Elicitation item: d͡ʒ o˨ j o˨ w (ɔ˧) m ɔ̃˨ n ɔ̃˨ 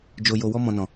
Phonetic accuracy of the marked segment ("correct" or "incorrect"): correct